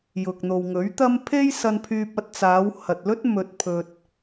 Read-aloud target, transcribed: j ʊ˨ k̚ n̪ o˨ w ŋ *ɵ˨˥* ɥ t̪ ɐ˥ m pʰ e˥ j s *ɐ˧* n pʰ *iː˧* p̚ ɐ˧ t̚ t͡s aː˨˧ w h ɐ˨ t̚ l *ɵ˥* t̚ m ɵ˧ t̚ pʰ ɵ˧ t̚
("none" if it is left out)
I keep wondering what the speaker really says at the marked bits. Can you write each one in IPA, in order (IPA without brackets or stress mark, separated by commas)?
ɵ˨˥, ɐ˧, yː˧, ɵ˥